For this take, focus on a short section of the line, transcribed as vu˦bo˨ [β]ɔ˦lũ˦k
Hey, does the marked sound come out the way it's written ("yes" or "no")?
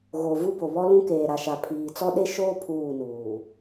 yes